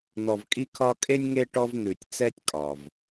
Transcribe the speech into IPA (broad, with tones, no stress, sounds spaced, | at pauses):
n̪ ɔ˨ v kʼ i˦ kʰ ɒ˦ kʼ e˥ nʲ ŋ e˥ ʈ ɔ˦ v n̪ ʉ˩ tʲ t͡s ɛ˦ tʲ kʼ ɒ˩ v